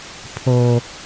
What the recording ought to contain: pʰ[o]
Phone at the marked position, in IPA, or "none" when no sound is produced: o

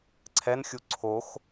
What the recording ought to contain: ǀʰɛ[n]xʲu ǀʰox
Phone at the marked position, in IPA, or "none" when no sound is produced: n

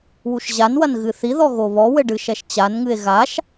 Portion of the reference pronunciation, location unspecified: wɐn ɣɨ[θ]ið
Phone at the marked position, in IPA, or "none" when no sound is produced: θ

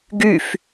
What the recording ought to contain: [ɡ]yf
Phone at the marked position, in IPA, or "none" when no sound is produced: ɡ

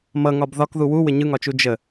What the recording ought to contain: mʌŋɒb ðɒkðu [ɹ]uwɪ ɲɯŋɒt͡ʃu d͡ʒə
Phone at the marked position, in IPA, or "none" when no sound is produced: w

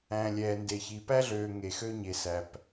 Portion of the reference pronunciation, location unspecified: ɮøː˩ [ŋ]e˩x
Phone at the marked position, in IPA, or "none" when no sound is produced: ŋ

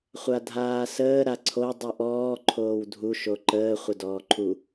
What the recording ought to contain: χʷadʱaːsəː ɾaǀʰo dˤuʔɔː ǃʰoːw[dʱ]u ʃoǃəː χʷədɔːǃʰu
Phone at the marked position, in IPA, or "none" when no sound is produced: dʱ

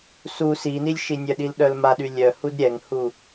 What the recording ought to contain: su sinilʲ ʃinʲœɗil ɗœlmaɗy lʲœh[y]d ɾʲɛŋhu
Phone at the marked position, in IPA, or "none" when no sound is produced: u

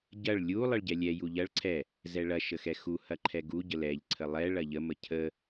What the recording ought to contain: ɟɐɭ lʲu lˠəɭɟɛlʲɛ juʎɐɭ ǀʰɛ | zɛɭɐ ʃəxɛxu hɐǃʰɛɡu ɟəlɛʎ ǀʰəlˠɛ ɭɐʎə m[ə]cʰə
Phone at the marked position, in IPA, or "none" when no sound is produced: ə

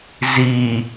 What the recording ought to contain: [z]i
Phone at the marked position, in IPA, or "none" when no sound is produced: z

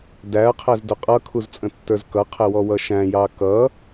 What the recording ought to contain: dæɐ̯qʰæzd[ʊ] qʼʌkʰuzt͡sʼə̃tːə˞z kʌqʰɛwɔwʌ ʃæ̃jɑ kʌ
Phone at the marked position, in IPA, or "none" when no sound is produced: ʊ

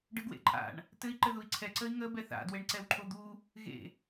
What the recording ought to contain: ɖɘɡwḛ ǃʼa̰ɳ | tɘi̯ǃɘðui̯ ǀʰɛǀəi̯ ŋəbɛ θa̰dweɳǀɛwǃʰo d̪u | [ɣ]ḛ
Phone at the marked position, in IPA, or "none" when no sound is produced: ɣ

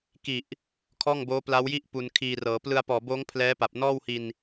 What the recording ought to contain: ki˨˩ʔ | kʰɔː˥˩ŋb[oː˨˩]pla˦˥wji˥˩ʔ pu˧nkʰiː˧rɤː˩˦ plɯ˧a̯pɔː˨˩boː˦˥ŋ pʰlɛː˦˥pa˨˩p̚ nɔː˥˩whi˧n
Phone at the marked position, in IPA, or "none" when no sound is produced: oː˦˥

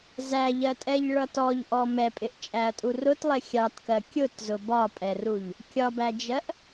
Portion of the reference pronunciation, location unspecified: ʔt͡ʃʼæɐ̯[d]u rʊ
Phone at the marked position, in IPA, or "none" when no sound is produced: tʼ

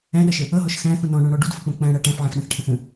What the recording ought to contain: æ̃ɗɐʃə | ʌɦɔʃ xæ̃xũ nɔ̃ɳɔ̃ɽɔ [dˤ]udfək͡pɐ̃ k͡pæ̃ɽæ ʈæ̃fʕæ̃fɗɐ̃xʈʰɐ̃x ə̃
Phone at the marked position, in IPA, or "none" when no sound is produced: ɖ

